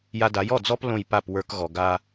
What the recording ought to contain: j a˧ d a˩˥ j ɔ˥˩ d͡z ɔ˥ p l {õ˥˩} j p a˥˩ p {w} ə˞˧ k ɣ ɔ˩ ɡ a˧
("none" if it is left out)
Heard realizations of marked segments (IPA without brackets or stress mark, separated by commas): õ˥˩, w